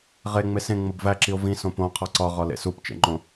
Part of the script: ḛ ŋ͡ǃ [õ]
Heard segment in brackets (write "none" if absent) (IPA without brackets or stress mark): õ